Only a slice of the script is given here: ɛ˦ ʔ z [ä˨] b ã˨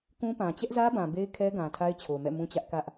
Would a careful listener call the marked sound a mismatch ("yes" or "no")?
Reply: yes